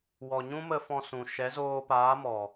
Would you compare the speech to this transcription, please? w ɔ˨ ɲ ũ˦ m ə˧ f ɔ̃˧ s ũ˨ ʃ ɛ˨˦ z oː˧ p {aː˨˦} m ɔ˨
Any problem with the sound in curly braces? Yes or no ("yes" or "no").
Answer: no